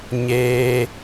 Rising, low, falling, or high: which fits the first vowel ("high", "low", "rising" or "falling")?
low